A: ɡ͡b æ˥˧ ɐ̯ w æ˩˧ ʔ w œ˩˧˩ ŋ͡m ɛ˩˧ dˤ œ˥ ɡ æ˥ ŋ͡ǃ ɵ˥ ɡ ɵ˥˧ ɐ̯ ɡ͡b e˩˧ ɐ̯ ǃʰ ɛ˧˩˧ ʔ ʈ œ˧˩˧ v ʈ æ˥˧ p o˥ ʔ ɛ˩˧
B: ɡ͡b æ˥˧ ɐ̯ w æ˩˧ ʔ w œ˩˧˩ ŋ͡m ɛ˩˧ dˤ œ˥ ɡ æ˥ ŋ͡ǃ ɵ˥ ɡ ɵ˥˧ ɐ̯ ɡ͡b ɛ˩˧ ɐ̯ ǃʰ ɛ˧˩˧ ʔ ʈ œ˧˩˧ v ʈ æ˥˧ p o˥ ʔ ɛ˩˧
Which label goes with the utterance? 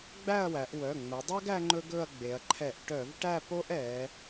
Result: A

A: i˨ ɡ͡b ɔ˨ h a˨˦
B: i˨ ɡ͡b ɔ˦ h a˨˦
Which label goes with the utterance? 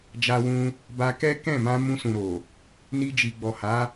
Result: A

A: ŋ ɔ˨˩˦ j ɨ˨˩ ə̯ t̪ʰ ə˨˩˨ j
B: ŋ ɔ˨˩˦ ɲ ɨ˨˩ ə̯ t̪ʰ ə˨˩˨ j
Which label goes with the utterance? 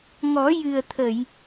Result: A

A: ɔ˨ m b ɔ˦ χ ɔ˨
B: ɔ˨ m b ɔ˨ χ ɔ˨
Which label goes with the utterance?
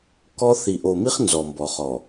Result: B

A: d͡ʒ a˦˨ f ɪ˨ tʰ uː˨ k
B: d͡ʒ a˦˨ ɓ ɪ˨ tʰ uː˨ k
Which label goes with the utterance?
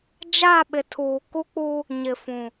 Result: B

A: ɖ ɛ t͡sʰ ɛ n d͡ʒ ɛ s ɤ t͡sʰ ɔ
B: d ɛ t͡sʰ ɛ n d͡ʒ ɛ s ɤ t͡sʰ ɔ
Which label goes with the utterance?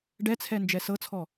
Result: A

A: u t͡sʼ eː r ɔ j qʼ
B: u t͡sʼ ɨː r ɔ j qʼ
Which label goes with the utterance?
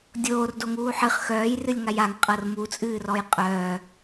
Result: B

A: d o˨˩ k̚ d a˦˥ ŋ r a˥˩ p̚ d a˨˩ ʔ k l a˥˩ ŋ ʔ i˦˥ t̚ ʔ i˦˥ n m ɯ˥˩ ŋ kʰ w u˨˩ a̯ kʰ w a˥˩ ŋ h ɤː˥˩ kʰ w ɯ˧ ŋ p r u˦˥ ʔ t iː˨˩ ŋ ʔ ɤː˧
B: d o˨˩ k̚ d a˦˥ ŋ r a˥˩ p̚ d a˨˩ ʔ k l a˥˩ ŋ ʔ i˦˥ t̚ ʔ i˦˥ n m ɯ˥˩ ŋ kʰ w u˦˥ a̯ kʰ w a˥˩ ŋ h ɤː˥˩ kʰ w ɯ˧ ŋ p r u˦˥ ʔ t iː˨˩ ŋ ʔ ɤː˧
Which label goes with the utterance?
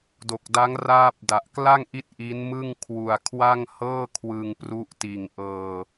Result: A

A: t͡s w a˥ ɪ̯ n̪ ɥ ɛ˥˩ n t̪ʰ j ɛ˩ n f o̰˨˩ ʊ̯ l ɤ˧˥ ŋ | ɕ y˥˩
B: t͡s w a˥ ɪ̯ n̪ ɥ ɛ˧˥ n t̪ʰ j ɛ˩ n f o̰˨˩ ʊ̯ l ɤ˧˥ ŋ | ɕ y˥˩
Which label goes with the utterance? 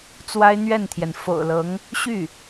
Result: A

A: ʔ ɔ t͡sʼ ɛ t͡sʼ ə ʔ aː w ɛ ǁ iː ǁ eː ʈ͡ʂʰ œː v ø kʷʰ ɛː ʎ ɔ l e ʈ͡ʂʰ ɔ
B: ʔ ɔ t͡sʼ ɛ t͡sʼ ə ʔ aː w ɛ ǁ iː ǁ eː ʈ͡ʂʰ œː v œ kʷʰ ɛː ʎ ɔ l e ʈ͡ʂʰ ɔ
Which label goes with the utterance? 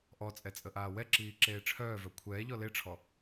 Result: B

